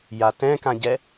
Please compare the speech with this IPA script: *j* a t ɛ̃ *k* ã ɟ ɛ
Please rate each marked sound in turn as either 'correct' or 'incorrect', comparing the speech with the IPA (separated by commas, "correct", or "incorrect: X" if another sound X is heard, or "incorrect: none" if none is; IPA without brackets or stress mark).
correct, correct